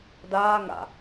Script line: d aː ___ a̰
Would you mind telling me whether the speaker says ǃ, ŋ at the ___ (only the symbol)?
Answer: ŋ